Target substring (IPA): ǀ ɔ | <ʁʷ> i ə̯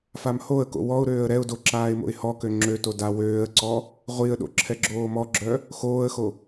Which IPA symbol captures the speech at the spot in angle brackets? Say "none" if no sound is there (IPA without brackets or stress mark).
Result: ʁʷ